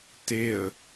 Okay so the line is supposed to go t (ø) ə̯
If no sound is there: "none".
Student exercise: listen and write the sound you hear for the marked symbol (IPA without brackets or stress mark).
e